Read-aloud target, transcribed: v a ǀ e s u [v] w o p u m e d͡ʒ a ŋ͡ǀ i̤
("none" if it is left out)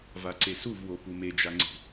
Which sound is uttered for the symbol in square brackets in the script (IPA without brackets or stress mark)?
v